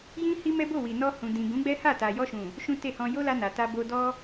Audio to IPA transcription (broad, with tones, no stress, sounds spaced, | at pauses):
j ĩ˦ h i˦ m ɛ˦ b o˦˨ w i˨ n ɔ˧ h ũ˨ d ĩ˨ ɡ ũ˨˦ ɡ͡b ɛ˦ h a˦˨ t a˨ j ɔ˧ ʃ ũ˨ | ʃ ũ˦ t e˦˨ h ɔ̃˧ j o˦ l a˧ n a˨ t a˧ b o˧ d ɔ˦